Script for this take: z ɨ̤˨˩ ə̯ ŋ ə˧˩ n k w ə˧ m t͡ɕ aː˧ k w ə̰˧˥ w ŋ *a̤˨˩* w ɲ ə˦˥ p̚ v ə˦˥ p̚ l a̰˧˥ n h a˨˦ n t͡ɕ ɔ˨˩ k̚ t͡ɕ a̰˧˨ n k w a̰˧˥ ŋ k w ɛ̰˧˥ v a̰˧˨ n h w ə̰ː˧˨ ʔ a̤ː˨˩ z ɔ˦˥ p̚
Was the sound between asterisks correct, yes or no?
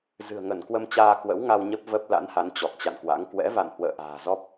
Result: no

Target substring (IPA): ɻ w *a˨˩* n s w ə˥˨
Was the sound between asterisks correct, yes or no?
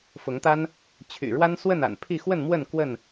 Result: no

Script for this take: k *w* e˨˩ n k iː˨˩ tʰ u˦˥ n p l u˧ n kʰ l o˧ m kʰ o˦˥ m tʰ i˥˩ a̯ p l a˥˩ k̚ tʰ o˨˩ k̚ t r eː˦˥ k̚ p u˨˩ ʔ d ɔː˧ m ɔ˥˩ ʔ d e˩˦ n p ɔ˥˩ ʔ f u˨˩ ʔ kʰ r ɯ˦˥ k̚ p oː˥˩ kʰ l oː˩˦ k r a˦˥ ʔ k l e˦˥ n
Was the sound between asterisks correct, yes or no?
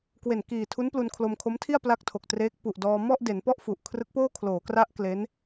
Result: yes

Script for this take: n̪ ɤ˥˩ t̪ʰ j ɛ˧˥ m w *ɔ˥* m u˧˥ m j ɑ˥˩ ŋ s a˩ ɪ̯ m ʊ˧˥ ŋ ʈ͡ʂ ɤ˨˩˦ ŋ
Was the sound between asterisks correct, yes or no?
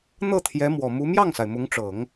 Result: no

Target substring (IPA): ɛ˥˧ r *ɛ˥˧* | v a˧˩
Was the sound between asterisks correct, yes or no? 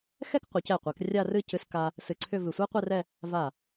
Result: yes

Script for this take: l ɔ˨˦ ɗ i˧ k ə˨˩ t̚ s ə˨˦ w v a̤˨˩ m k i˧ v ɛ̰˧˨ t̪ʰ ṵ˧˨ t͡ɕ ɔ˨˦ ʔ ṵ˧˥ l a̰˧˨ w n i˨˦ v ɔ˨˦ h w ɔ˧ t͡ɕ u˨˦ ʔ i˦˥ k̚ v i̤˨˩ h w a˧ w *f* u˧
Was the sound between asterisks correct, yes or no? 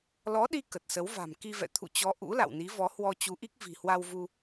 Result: no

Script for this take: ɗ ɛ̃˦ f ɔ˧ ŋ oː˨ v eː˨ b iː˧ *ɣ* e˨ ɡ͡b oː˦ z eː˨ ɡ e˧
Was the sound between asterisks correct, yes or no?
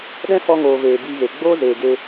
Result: yes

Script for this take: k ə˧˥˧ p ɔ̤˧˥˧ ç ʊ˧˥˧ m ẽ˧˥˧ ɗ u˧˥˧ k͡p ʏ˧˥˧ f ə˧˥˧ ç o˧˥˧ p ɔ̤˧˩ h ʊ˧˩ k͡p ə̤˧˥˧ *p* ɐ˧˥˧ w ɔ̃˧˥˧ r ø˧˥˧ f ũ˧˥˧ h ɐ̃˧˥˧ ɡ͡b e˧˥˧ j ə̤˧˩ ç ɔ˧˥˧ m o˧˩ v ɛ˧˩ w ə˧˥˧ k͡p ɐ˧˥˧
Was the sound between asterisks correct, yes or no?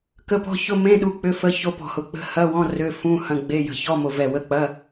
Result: no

